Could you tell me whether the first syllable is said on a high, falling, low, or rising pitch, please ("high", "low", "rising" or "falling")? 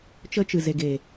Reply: high